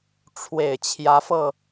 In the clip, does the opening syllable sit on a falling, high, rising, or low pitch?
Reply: low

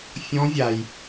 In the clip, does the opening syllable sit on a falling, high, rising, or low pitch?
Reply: rising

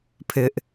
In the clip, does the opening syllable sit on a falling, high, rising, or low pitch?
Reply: high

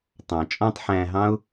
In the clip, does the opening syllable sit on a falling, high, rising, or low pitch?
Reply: low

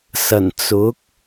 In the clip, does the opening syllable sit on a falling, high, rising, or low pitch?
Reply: low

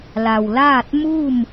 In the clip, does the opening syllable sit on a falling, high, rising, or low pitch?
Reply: low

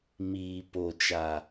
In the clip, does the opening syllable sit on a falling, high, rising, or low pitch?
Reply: low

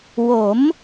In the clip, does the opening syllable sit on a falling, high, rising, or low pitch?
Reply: rising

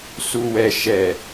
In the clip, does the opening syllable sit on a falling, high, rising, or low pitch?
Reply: low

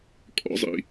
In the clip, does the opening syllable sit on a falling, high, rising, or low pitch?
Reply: high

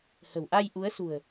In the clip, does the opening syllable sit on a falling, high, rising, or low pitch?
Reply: low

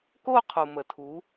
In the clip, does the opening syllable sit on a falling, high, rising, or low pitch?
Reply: falling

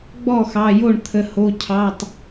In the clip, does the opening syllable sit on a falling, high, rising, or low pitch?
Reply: falling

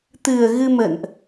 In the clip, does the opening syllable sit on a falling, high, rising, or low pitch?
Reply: low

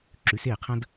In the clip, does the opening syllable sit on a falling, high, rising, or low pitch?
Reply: rising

